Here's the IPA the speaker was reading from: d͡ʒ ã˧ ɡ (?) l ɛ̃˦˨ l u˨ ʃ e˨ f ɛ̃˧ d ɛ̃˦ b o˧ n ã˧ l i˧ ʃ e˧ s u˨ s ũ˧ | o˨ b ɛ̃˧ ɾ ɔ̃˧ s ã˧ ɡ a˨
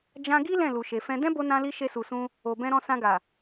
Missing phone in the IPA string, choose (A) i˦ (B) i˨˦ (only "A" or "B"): A